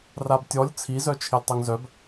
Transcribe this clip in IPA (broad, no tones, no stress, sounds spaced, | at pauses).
r a b tʲ ɔ lʲ t͡sʰ i z œ t͡ʃʰ ɪ lʲ tˤ œ ŋ z œ b